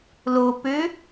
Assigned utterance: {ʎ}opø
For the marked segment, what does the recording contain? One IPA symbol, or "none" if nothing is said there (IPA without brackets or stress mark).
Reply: l